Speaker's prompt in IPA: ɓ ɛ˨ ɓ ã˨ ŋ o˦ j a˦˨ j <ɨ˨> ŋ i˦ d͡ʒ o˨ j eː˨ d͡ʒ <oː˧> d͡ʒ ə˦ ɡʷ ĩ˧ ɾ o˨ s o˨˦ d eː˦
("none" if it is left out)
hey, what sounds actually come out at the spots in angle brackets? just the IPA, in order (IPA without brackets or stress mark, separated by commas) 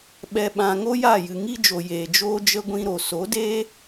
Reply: ɨ˨, oː˦